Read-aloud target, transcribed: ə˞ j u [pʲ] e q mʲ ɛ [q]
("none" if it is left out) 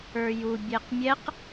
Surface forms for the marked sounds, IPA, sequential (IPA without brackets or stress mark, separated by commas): bʲ, q